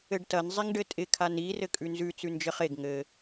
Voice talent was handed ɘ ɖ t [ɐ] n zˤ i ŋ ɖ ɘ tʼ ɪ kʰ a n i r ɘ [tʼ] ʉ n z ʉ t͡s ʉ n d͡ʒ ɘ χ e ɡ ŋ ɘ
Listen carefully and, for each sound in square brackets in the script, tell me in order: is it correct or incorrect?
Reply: correct, incorrect: kʼ

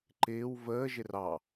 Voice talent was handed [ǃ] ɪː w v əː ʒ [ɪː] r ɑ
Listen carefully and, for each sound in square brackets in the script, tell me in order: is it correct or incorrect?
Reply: correct, incorrect: ɪ

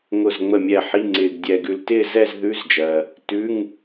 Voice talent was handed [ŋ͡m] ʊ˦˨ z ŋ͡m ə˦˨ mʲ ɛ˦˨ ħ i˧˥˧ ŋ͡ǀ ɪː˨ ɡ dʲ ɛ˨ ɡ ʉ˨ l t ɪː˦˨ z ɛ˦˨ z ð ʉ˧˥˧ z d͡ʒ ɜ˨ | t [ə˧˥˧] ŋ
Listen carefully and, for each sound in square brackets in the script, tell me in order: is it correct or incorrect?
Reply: incorrect: ŋ, incorrect: ʉ˧˥˧

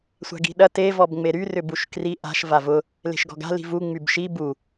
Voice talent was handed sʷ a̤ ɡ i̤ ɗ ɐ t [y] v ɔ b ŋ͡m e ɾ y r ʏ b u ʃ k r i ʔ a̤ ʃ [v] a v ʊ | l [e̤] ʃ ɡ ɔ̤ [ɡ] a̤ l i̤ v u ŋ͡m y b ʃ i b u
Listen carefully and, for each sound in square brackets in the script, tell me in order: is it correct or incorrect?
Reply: incorrect: e, correct, correct, correct

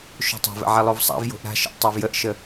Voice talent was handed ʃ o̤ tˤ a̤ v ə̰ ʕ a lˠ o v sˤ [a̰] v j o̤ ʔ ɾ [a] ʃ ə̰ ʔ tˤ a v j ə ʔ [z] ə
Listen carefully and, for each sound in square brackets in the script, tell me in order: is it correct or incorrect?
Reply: correct, incorrect: a̤, incorrect: ʃ

